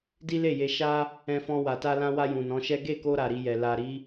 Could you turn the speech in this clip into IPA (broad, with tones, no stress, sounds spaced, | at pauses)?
d i˦ l e˦˨ j e˧ ʃ a˦ | ɛ̃˧ f ɔ̃˧ w a˨ t a˧ l ã˧ w a˧ j ũ˨ n ɔ̃˨˦ ʃ ɛ˦ ɡ e˦˨ k o˧ ɾ a˨ ɾ i˧ j ɛ˨ l a˨ ɾ i˨˦